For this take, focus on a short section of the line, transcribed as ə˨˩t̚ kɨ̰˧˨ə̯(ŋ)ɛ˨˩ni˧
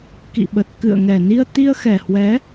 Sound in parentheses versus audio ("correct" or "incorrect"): correct